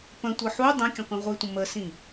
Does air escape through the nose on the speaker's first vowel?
yes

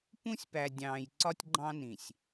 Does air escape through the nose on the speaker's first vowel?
yes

